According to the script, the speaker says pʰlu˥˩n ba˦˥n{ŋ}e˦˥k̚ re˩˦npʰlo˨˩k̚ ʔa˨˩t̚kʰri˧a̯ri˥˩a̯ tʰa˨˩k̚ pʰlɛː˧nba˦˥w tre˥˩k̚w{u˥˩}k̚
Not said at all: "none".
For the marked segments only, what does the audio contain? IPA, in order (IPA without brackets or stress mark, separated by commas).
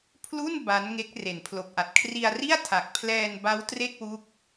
ŋ, u˦˥